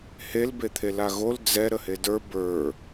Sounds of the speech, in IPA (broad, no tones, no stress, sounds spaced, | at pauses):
h e l b e t̪ʰ e l a ɣ o l d͡z ɛ ɾ ə h e d ə˞ b ə˞